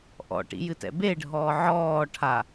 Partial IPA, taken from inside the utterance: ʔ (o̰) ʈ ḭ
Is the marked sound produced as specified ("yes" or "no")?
no